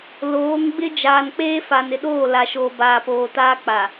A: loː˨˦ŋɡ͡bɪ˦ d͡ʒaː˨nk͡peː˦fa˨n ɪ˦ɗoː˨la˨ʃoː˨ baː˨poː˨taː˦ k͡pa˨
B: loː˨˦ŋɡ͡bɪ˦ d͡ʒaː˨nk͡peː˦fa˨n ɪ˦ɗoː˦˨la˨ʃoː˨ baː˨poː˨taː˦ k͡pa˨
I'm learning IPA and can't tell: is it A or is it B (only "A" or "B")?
B